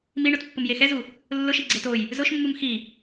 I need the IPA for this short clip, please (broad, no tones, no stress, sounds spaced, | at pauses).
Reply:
m i ɳ ʊ t pː ʊ m j e x ɛ z u | lː ʊ ʃ i ɡ͡ǀ e t o j | z ʊ ʃ mː u m x i